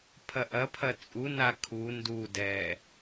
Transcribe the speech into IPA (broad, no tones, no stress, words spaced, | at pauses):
pʰɐʔɐpʰɐ t͡sʼuna kʰu ndudɛ